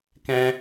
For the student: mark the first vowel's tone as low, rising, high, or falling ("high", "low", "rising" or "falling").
high